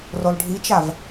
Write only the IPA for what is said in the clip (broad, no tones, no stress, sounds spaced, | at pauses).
r o lˠ ɖʱ i t͡ʃ a v